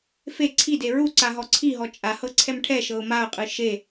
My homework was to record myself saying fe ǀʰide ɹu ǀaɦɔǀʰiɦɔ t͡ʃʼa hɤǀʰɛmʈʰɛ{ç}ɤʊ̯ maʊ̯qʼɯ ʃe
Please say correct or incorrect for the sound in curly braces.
incorrect